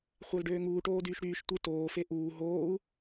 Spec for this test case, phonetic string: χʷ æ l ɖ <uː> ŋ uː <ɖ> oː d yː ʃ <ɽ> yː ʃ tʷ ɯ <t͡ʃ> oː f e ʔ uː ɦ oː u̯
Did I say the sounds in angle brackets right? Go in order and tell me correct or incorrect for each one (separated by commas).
incorrect, incorrect, correct, incorrect